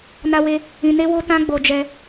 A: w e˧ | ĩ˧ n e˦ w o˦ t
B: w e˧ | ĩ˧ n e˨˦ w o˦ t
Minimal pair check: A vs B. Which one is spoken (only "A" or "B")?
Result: A